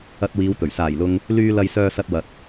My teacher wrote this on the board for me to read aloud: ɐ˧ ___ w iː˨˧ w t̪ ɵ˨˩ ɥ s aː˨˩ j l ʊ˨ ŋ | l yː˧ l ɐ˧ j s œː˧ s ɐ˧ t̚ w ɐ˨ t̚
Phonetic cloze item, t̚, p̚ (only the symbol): t̚